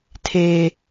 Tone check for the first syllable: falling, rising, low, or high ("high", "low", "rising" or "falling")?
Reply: low